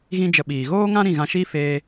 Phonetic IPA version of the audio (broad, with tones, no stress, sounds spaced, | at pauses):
ɣ ĩ˧ d͡ʒ ə˨ ɓ iː˨ ɣ oː˦ ŋ ã˦ ɾ ĩ˦˨ ɣ ã˧ ʃ i˦ f eː˧